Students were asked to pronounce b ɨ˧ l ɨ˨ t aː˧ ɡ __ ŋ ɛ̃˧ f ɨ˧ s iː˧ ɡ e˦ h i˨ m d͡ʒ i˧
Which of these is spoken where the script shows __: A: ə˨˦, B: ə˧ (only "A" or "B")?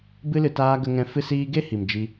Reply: B